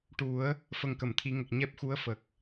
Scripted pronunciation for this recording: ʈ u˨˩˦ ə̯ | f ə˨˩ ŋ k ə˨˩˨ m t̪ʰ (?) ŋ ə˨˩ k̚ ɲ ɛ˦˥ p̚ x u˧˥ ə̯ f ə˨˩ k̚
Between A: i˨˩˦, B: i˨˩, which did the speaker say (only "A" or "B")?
A